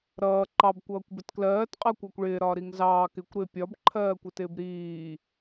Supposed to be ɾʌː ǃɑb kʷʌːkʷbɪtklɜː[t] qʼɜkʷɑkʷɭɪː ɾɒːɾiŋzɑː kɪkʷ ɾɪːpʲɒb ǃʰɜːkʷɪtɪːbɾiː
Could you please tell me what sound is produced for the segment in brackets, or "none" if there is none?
t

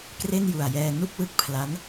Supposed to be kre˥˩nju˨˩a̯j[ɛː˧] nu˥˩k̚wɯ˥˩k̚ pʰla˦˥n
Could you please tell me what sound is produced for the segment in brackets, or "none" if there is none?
ɛː˧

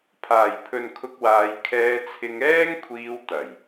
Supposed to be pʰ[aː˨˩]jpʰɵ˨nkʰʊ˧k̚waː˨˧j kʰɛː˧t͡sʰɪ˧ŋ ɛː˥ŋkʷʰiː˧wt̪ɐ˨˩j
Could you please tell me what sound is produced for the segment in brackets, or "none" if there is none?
aː˨˩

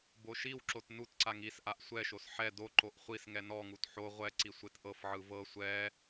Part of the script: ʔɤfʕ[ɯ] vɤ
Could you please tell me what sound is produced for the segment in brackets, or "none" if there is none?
ɯ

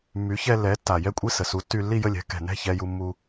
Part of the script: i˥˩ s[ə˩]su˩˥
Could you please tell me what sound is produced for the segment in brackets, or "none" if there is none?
ə˩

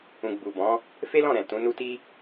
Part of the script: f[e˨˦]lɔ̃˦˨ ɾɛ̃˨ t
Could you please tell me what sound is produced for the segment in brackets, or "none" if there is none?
e˦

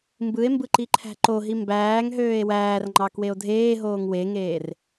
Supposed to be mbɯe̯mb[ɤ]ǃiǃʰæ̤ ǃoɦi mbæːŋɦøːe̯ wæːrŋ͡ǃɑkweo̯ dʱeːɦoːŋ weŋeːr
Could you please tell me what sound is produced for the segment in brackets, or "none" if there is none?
ɯ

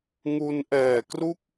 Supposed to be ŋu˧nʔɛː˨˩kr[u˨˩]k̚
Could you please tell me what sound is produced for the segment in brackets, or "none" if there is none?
u˥˩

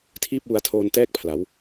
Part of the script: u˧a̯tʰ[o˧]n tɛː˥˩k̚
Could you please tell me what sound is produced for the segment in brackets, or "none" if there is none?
oː˧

